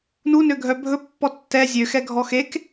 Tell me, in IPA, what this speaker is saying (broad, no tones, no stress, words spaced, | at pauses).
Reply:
nunø ɡʱœbʱɵ pːɔtːɛ zʲøxɛ ɡʱɔxek